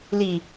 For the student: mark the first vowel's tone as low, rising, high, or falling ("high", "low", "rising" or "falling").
low